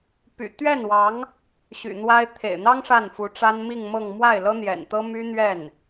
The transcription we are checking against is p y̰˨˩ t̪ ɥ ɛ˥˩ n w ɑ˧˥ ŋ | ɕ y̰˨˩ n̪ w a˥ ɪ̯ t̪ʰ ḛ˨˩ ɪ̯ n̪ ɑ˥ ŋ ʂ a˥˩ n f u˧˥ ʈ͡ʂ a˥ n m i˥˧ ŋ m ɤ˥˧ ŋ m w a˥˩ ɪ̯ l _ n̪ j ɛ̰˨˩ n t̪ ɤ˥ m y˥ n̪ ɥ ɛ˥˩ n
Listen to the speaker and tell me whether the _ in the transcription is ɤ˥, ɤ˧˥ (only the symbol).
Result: ɤ˥